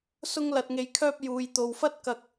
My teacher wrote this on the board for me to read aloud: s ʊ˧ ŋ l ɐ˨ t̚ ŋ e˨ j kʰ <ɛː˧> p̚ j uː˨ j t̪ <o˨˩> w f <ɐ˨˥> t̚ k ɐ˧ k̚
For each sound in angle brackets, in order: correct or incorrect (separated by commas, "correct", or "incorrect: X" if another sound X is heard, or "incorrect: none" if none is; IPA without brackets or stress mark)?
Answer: incorrect: œː˧, incorrect: o˨, incorrect: ɐ˥